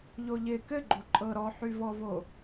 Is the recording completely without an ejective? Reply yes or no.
no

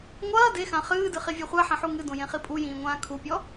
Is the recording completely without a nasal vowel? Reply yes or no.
no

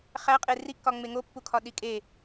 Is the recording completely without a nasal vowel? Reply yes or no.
yes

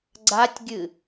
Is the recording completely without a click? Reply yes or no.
no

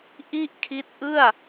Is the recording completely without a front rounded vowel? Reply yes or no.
yes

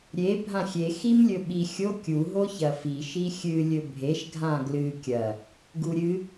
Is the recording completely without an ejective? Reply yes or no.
yes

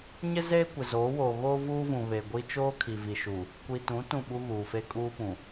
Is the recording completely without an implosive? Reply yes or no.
no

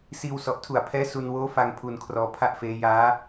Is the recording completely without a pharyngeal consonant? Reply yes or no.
yes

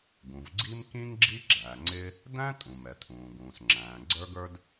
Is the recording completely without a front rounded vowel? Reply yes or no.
yes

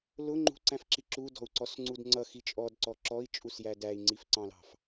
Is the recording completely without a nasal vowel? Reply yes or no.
no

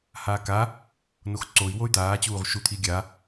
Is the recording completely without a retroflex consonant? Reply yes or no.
yes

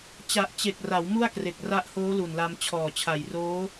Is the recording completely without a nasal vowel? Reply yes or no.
yes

